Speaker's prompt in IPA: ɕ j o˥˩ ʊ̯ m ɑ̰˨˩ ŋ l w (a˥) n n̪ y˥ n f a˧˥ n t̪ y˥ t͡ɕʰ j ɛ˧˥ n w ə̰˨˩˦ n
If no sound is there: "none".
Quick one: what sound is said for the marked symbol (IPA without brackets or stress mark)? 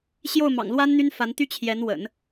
a˥